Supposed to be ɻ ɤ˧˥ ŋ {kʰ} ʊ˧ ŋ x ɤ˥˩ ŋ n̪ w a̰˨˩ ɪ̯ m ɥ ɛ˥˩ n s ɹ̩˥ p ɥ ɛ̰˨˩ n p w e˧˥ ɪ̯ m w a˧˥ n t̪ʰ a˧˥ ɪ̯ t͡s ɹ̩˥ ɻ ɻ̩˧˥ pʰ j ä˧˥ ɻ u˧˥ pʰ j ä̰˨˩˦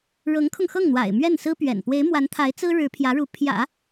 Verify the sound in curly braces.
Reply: correct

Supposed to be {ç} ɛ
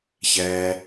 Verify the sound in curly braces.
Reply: correct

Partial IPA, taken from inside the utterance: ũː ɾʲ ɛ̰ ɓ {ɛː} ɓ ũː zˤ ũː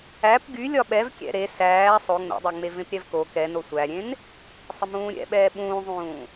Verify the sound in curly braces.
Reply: correct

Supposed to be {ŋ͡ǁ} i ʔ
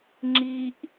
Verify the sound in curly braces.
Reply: correct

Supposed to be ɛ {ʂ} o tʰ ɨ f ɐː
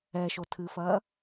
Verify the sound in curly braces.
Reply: incorrect: ʃ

